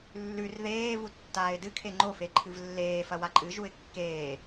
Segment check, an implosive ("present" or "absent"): absent